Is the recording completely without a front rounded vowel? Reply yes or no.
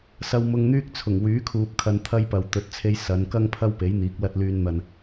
no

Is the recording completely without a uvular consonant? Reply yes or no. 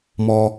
yes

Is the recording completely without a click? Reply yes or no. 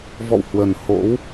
yes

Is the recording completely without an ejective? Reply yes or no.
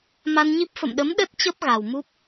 yes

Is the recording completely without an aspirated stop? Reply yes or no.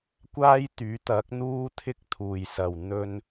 no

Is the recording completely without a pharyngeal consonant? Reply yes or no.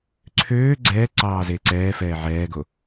no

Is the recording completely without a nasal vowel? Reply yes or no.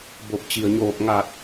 yes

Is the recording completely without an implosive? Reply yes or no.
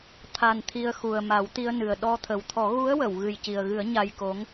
no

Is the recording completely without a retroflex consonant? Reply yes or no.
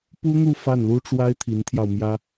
no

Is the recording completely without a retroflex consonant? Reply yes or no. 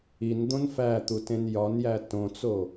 yes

